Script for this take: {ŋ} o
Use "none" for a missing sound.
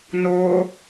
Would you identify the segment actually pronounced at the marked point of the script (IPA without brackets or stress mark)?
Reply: n